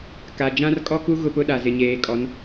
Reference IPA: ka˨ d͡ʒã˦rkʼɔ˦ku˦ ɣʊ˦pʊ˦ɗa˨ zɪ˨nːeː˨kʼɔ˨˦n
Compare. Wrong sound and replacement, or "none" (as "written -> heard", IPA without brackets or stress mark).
nː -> ɲ